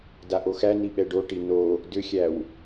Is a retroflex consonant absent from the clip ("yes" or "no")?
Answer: no